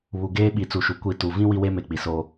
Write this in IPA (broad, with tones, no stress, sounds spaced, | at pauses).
β u˨ ɡ eː˦ ɓ i˨˦ t͡s u˨ ʃ u˨ kʷ i˦˨ t u˨ v ĩ˦ w i˦ w e˦ m e˨ k͡p i˨ s oː˦